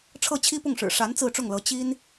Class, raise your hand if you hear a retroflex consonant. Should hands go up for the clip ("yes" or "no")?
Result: yes